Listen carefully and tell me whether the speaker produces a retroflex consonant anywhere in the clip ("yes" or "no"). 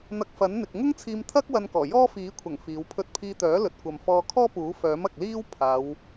no